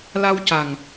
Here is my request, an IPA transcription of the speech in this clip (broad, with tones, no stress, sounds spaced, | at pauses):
l a˧ w c a˨˩ ŋ